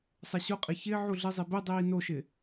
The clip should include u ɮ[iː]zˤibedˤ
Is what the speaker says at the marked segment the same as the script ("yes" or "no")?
no